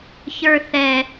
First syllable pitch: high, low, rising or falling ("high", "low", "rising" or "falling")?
high